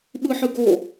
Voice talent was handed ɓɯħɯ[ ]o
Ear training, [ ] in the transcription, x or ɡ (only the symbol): ɡ